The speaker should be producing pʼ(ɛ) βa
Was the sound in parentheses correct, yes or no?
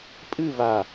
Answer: no